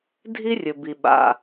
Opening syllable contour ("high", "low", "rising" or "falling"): high